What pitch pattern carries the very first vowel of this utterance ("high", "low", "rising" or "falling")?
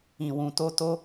low